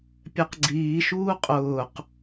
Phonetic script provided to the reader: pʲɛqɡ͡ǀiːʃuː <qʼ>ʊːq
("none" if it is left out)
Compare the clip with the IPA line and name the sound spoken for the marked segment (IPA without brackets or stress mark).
qʼ